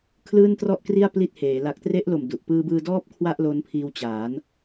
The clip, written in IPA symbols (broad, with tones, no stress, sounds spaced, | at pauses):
kʰ l ɯː˥˩ n t r ɔ˥˩ ʔ k r i˥˩ a̯ p l i˦˥ t̚ h eː˩˦ l a˨˩ k̚ t r e˦˥ ʔ l o˨˩ m d u˨˩ ʔ p ɯː˧ b ɯː˧ d ɔː˥˩ p̚ kʰ w a˥˩ ʔ l o˦˥ n pʰ iː˧ w t͡ɕ aː˩˦ n